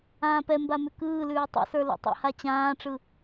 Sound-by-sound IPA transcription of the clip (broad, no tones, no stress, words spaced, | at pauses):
ãːpɛmba mʉkɯːlʉː tˤɛ̰sə˞ lo̰tˤɛ̰ha t͡ɕãːʈ͡ʂɯ